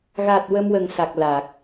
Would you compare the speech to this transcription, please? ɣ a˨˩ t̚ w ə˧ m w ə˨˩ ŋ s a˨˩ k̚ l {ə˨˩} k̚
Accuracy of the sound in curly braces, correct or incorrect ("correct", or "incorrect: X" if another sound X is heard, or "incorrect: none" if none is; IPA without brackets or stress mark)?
incorrect: a˨˩